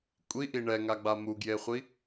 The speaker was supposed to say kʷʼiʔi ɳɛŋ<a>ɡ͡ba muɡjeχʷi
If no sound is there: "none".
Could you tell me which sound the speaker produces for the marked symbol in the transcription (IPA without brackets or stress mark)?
a